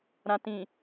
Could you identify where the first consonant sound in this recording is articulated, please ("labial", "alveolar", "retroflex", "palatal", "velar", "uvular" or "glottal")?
alveolar